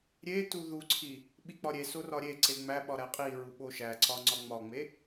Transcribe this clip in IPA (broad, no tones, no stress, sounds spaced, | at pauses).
ɾʲ e t u ð u ǀʰ i | ɓ i k͡p ɒ ɾʲ e s o r ɒ ɾʲ e ǀ e ŋ͡m æ ɓ ɒ ɾ æ qʼ i ɹ u ɓ o ʃ æ ǀ ɒ ŋ͡ǀ ɒ ŋ͡m ɒ ŋ͡m e